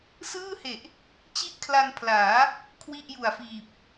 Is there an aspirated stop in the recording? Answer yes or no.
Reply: yes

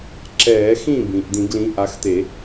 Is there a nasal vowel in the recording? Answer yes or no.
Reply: yes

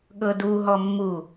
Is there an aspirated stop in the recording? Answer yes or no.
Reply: no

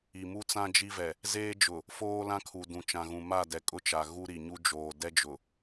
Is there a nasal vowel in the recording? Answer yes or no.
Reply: yes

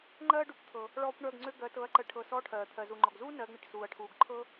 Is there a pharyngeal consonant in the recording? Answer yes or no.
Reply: no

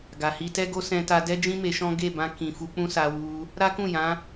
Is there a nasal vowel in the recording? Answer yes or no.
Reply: yes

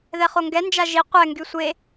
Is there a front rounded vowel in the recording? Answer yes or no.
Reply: yes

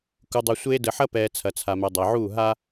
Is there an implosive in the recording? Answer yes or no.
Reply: no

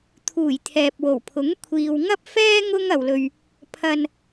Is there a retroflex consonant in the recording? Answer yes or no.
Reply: no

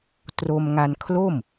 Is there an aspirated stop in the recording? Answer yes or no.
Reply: yes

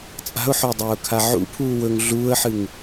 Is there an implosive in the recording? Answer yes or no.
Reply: no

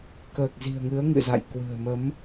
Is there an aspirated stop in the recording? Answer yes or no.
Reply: no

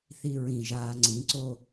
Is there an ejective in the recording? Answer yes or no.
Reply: no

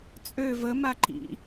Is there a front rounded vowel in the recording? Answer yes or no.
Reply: yes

